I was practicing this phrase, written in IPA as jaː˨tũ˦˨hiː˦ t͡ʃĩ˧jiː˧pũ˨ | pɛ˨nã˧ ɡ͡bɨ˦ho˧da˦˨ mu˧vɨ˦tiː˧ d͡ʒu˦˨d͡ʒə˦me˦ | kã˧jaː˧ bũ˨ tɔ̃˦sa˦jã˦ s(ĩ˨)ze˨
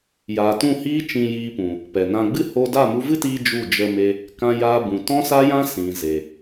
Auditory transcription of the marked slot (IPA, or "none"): ĩ˨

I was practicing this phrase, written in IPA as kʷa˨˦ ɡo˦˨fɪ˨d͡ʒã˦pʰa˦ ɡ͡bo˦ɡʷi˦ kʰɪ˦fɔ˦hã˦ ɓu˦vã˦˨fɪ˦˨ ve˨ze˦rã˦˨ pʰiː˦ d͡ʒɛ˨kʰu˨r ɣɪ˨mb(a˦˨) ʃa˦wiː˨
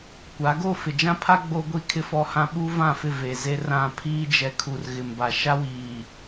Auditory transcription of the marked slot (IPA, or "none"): a˨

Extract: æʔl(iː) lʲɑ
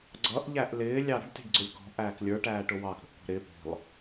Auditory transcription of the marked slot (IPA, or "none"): ɪː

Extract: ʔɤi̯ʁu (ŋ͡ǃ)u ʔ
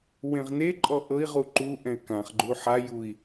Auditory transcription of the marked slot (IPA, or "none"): ǃ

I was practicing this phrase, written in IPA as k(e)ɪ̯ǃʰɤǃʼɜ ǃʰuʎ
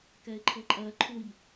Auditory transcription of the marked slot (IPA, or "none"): ɛ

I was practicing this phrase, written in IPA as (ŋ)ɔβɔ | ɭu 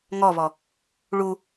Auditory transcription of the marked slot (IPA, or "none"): ŋ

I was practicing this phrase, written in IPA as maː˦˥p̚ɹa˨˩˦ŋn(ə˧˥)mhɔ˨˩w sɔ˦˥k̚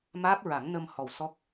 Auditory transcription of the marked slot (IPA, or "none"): ə˧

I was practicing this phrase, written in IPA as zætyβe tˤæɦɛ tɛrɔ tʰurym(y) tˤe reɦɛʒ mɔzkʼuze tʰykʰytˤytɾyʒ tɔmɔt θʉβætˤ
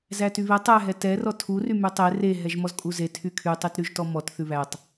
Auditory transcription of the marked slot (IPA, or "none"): y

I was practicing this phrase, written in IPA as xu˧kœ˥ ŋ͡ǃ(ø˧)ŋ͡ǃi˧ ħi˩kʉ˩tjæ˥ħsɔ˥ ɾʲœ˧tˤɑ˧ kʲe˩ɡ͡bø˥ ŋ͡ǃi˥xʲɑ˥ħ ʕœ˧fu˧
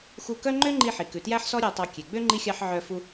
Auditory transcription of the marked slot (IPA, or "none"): ø˥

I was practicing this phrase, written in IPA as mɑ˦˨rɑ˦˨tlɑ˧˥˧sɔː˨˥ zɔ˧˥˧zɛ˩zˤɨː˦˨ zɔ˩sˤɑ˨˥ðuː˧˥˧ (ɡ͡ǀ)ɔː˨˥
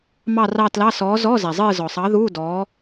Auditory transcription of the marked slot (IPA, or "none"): d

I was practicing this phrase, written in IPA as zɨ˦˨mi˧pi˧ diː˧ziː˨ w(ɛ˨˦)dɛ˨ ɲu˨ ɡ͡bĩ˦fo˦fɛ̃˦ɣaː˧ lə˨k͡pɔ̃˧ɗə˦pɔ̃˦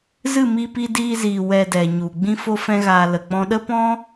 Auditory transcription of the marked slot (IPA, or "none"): ɛ˧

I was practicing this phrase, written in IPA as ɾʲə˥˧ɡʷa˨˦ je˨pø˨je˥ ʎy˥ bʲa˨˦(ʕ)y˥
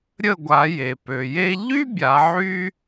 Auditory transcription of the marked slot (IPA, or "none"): ʕ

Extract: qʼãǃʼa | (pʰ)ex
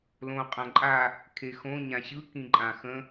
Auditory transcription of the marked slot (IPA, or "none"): kʰ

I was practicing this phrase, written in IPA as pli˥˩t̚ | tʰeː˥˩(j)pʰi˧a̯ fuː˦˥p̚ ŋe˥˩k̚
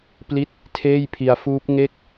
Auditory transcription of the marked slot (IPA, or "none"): j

